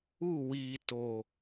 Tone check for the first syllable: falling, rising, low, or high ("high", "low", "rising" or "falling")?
falling